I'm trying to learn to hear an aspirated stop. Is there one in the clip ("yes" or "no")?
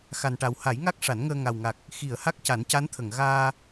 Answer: yes